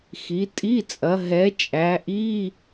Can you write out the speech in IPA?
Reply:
xi˩˧tʼi˧˥˧t͡sʼɐ˩˧ ɦɛ˩˧ t͡ʃʼæ˩˧ʔi˧˥˧

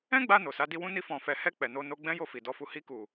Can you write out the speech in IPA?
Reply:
ɛ̃˦ɡ͡ba˧ no˨sa˨˦ di˧ wũ˧ni˧ fɔ̃˨fɛ˨ hɛ˧ k͡pɛ˨no˧ no˧ɡ͡bɛ̃˦ jo˦˨fi˨dɔ˨˦fu˧ hi˧ku˨

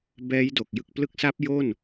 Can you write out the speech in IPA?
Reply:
bɛː˦˥jdo˨˩k̚ jɯ˨˩k̚plɯ˦˥k̚sa˦˥p̚ jo˥˩n

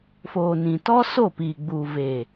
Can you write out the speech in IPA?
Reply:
foː˨nĩ˨ tɔ˦so˦˨piː˨ ɡ͡buː˨veː˨

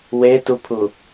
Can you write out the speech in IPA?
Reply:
wetupʰu

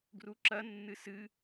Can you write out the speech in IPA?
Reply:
ɡruǁɐ nːɨsɨ

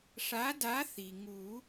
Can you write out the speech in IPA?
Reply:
ʂa˨˥da˨˥ θi˩ŋu˨˩˦

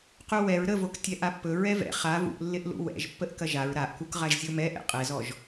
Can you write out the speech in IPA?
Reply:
quwɛɹ ɾəvok tʲɛʔapːɵ ɹɛvɛ̰ χa vṵʔlːɪʔlṵ wɛ̰ʒpːəʔ kɐʒaɹ ɾaʔkuk ʁaʒzʲomɛʔɛ̰ qʼɛzɔʒ

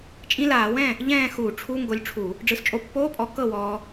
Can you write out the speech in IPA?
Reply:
t͡ʃʼĩ˧˥˧laː˧˩˧wɛ̃˥˨ | ʎɛ̃ː˥˨xu˧˩˧ʈ͡ʂʰu˧˥˧ ŋɡo˧lʲʈ͡ʂʰu˧˩˧ | ɖ͡ʐɯ˨˩st͡ʃʼo˧pːoː˧˥˧pʼɔ˨˥ kɤ˥˨wɔː˧

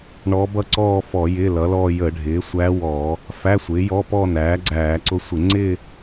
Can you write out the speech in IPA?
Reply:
ɳɔ˧˥ bʌ˥˧ǀɔː˥˧fɔ˧˩˧ jɪː˧˥˧lʌ˩˥lɔː˥˧ jə˧˩˧ ɖʱɪː˩˥sʷæ˧˥wɔː˧˩˧ | fæ˧˥˧sʷɪː˩˥jɔ˧˥˧ pɔ˥˧ næː˩˥ɡ͡ǀæː˧˩˧ǀʊ˧˥sʷɪ˧˩˧ ŋ͡ǀɪː˥˧

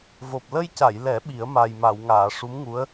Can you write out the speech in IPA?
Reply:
vo˨˩p̚ lə˧jca˨˩˨jlɛ˨˩˦ ɓi˨˩˦ə̯ma˨˩j ma˨˩˨wŋaː˨˩˨ ʂu˧˥mŋu˧˥ə̯

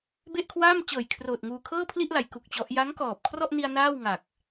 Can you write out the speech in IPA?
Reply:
be˥˩ʔkʰwaː˥˩m t͡ɕɤː˨˩jkʰroː˨˩t̚ ŋuː˧ kʰɤː˥˩pʰli˥˩ʔla˩˦j ku˨˩k̚t͡ɕɔ˦˥ʔ ja˦˥ŋkɔː˨˩p̚kʰrɔ˥˩ʔni˧a̯ naː˥˩wŋa˨˩k̚

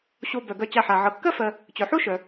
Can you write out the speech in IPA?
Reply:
ɕo˨bœ˩ ɡœ˨t͡ɕa˨ħa˩ ʕɤ˩kːɜ˥ fɜ˨ | t͡ɕœ˩ħo˥ʃœ˩

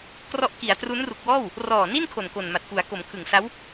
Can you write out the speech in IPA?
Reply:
krɔ˦˥ʔki˩˦a̯ tru˦˥nru˨˩k̚wɔː˥˩w | rɔː˨˩ni˥˩nkʰo˨˩n ko˨˩nma˨˩t̚ku˩˦a̯ ko˩˦mkʰɯ˨˩ŋsa˦˥w

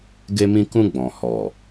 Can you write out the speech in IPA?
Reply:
ɡe˧mĩ˧kũ˧ ɡ͡bɔ̃˨ hɔ˨

